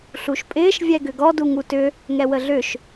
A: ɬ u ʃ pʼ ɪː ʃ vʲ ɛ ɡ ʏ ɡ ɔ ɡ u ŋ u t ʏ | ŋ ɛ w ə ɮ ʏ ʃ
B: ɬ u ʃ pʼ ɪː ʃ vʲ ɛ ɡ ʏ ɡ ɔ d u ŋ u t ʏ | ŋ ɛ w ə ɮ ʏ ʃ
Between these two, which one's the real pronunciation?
B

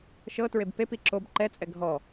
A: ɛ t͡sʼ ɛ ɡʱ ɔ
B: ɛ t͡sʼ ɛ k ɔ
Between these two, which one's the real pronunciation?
A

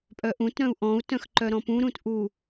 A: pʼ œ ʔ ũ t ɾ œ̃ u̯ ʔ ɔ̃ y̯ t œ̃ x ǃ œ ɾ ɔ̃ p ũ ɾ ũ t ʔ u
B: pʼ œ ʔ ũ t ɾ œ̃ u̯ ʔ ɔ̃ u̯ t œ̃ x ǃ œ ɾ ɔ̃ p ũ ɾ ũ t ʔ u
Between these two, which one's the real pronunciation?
B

